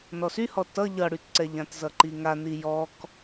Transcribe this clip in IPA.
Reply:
n ɔ s y h ɔ t ʌ ʎ ʌ ɽ y t ǀ ɛ ʎ ã t z ʌ ǃ i ŋ a n i j ɔ k

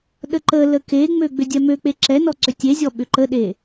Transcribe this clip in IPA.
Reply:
ɗ ə ǃ ə l ə k e ŋ͡m ø ɡ͡b ʏ dʲ ɛ m ø k͡p e ǁ ɛ n ɔ ǀ ʏ tʲ e zʲ ɔ ɓ ʏ ǃ ə ɗ e

